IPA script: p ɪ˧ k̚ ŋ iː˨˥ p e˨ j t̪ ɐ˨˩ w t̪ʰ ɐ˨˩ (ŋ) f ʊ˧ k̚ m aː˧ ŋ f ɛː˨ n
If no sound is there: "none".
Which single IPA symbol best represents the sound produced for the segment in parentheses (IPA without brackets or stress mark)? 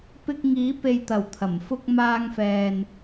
m